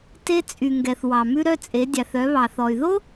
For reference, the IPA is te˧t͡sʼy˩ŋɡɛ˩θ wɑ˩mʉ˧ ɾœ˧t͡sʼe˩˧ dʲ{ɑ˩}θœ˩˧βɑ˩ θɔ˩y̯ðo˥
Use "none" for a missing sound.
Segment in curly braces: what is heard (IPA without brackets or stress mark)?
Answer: ɑ˩